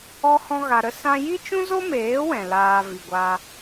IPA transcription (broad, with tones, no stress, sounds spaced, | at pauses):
ɔ˦ h ɔ̃˦ ɣ a˧ ɾ ə˦ s ã˦ j i˦ t͡ʃ ũ˦ z o˦ m eː˨˦ w ɛ̃˨ l aː˧ v i˨ ɡʷ a˧